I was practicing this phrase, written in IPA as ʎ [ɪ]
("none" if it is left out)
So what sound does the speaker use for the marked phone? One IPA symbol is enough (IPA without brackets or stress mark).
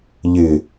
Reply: ɪ